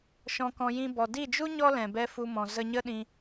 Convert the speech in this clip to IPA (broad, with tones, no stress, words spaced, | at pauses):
ʃɔ̃˧kɔ̃˧jĩ˧ bɔ˨di˦˨d͡ʒu˦ ɲɔ˦lɛ̃˨bɛ˧ fu˧mɔ̃˨ zə˧ɲə˦ɗĩ˧